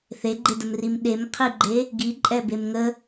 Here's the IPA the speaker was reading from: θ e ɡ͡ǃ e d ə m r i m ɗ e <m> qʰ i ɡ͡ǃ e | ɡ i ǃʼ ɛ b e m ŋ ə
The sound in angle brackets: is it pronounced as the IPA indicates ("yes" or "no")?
yes